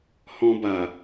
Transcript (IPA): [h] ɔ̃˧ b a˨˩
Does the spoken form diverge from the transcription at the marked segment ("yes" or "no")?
no